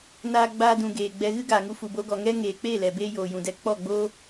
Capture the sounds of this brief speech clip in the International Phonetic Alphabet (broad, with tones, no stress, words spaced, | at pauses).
naː˧ɡ͡baː˧dũ˨ ɡeː˨ɡ͡bɛ˧ ɣɨ˦ɡaː˨ŋu˧ fu˨bo˧ɡɔ˨ŋɛ˦ ŋeː˨k͡peː˦˨lɛ˨ beː˦ joː˨jũ˨dɛ˧ k͡pɔ˦˨ɡ͡boː˦